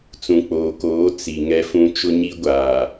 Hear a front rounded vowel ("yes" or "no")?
no